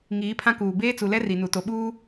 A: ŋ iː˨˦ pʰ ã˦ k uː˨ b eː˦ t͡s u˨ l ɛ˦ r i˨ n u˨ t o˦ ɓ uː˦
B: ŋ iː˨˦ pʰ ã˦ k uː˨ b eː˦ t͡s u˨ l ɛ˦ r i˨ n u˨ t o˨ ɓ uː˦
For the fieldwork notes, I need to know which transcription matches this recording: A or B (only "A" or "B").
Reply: B